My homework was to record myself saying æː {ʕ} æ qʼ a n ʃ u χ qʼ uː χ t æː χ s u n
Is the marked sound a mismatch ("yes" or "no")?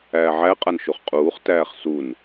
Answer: no